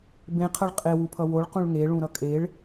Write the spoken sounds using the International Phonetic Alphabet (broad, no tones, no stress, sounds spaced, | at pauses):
b ẽ qʰ ʌ ɭ qʼ e w u pʰ ʌ w o ɭ q ũ ɭ ŋ e ɭ ũ ɾ ʌ kʼ e ɭ